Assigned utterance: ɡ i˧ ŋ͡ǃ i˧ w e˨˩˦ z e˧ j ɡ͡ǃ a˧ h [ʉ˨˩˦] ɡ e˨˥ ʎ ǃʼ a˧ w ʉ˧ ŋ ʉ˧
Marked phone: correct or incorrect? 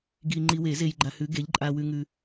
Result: incorrect